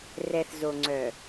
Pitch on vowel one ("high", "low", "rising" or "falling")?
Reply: low